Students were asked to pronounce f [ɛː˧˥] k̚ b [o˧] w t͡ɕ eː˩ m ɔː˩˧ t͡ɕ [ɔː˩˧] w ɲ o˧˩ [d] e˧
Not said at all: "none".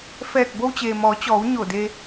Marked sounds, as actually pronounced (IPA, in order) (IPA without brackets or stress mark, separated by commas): ɛː˧˩, o˧, ɔː˩˧, d